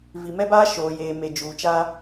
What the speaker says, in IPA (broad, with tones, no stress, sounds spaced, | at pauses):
v i˨ m ɛ˦ b aː˦ ʃ oː˨ j eː˨ m e˨ d͡ʒ uː˨ t͡ʃ aː˦